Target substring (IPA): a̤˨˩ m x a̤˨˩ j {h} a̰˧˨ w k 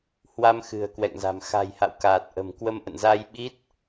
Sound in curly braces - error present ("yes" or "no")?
no